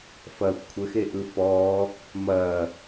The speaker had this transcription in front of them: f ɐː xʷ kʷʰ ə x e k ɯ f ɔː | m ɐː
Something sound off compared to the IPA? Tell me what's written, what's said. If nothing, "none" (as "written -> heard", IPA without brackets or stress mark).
k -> ʔ